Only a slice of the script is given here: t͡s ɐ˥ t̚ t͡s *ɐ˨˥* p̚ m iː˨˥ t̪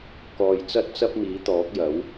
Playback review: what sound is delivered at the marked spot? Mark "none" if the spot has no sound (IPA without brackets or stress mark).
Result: ɐ˥